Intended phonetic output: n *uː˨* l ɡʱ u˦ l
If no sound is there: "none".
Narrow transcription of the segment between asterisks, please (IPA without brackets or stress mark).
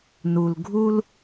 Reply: u˨